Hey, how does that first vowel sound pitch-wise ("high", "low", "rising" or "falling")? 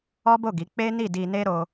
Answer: high